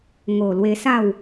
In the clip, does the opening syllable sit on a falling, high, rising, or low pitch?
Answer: low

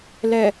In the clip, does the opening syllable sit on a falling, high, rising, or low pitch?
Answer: low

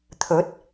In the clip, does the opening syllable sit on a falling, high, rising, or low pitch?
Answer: rising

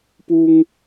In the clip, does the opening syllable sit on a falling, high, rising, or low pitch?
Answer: high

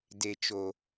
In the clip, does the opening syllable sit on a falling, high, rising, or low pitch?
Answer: low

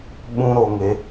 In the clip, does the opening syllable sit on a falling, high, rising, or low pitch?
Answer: high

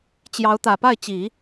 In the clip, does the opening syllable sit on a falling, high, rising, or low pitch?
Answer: rising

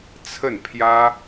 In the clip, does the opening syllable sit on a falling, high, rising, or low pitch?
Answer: falling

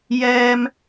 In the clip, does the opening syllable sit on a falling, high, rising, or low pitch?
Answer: high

